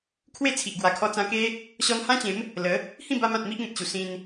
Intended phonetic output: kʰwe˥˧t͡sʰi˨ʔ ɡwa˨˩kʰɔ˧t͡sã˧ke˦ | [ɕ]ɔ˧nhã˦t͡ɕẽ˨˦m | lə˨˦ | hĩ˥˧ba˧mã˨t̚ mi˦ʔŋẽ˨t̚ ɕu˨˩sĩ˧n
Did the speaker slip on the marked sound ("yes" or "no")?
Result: no